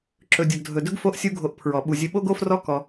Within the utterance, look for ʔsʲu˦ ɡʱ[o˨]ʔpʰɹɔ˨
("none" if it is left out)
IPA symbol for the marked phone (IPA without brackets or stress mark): o˧